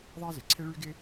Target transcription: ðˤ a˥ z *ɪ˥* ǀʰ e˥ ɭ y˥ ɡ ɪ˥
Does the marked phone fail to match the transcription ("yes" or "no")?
yes